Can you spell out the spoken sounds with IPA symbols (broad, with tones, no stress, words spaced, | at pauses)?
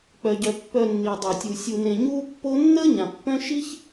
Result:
k͡pœ˨ɟœ˨ pːœ˨nːi˩dˤœ˩tʲu˩ sʲu˨nẽ˨ ɲuː˦pːo˦nːəː˥ ɲã˩pːœ̃˥ ʃi˥ç